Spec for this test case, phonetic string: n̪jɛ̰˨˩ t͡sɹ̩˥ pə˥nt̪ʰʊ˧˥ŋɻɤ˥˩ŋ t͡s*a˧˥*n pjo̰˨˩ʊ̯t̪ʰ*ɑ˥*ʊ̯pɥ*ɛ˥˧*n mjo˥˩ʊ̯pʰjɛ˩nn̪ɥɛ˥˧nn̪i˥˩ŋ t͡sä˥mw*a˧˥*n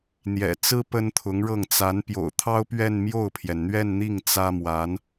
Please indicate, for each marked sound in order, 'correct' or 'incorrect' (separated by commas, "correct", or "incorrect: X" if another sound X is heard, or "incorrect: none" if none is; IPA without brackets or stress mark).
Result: correct, correct, correct, correct